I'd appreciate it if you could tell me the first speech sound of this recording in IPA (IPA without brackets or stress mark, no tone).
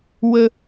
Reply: w